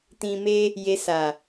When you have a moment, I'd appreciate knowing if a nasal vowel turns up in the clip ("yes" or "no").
yes